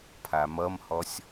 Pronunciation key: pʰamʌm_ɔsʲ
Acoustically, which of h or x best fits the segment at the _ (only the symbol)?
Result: h